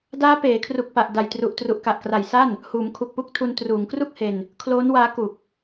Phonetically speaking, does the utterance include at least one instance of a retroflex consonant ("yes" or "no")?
no